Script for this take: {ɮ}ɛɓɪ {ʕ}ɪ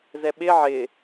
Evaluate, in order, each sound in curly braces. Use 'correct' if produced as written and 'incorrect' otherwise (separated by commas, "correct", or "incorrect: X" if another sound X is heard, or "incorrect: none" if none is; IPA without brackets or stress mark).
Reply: incorrect: z, correct